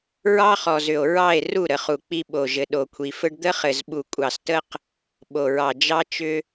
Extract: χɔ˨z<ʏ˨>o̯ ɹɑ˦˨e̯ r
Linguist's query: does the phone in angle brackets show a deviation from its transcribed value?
no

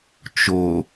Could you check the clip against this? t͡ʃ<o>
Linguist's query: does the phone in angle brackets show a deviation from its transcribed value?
no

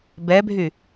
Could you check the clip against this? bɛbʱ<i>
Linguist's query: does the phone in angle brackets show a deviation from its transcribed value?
yes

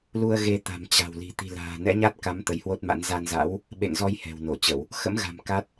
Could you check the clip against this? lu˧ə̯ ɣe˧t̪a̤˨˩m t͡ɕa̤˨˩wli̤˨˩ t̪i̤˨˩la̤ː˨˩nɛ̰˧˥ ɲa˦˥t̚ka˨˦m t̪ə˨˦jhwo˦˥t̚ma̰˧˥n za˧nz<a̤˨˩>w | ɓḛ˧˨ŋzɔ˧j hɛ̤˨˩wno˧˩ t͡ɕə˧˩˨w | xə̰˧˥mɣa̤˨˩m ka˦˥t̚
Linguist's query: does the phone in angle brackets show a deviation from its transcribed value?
yes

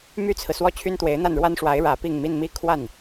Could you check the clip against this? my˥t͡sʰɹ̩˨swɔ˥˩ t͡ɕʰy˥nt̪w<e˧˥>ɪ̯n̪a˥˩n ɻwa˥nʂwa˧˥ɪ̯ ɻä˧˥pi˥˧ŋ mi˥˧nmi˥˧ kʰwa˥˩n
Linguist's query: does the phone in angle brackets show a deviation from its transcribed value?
no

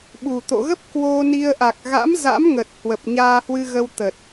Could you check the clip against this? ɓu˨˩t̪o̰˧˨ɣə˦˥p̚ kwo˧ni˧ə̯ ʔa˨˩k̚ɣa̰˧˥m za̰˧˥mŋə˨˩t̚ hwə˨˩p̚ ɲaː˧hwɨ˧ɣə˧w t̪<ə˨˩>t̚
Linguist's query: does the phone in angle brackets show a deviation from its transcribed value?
no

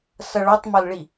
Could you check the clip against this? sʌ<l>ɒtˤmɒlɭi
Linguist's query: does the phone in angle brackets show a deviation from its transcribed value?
yes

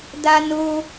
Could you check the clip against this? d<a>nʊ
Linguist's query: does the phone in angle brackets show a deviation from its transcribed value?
no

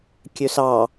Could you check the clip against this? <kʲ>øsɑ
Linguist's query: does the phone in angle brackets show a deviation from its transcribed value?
no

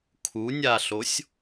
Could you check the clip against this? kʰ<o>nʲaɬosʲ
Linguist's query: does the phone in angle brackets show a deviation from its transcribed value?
yes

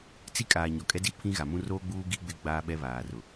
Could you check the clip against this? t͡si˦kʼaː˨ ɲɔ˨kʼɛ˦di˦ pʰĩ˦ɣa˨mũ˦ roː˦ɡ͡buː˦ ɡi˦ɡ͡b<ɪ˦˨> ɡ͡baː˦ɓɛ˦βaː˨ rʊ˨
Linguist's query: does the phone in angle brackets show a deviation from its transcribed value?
no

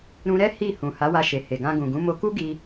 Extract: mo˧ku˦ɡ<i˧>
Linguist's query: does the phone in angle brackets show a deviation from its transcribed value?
no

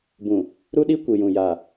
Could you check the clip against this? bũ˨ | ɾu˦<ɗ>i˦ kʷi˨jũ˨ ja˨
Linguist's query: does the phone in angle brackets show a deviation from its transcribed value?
no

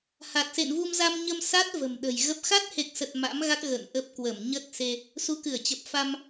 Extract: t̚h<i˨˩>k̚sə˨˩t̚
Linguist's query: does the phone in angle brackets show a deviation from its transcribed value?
yes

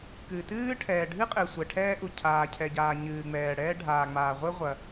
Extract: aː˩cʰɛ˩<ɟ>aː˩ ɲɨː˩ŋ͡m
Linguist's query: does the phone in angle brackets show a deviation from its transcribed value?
no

